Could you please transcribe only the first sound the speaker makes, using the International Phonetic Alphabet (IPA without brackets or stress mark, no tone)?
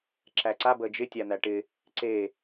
ǁ